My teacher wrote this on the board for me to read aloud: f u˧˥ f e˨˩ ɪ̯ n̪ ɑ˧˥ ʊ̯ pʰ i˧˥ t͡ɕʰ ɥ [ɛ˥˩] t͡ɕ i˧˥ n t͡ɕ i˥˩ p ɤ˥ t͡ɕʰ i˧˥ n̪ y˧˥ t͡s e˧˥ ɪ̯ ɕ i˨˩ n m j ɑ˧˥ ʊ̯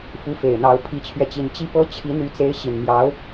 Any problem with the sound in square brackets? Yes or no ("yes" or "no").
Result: yes